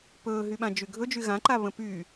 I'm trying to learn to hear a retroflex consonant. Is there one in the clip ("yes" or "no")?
no